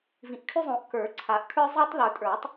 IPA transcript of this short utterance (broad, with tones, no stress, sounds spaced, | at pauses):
v ĩ˨˩˦ ʔ kʰ ʉ˦ zˤ õ˨˩˦ ʔ k ə˞˨˩˦ ǀʰ a˨˩˦ ʔ kʰ ə˞˦ zˤ æ˦ tˤ ð ə˞˨˩˦ tʼ ə˞˨˩˦ tˤ